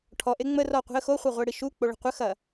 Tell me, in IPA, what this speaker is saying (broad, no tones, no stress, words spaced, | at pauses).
ʈʰɔʔe ŋ͡mərɔqʷi̤ə̯ xoχʷɐʁʷeɽi ʃuk͡poɭə̤ qʷəxɐ